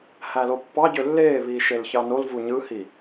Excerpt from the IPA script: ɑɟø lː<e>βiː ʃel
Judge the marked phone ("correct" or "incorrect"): incorrect